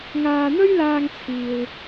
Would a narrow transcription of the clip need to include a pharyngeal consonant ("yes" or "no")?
no